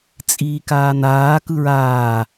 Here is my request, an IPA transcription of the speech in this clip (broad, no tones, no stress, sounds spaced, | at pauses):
t͡sʼ iː k aː n aː k ɯ ɹ aː